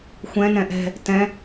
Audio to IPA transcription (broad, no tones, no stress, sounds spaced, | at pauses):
xʷ ɛ̃ n ɛ̃ ʔ ɛ̤ | t ɛ̃